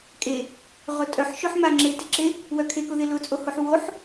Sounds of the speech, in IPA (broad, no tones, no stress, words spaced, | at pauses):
kʼe | ʁʊtʼœħʃʊħ maŋ͡ǁetɪǁe | wœkʰekʊðɪ lʊt͡sʼohoħ woħ